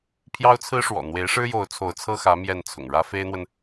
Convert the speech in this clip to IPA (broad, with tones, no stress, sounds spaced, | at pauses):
pʰ j ɑ˥ ʊ̯ t͡sʰ ɹ̩˥ ʂ w ɔ̰˨˩ n̪ w e˧˥ ɪ̯ ʂ ɻ̩˥ j o˧˥ ʊ̯ t͡sʰ o˧˥ ʊ̯ t͡sʰ ɤ˥ x ä˧˥ m j ɛ˥˩ n t͡sʰ ʊ̰˨˩ ŋ ɻ ä˥ f e˥ ɪ̯ n̪ w ə˨ n